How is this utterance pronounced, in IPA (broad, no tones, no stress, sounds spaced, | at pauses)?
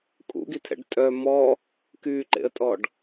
kʼ ṵ ɡ i tʰ ɛ̰ ɖ tʼ œ m ɔ | k y ǃ ḛ ə̯ tʼ ɔ ɖ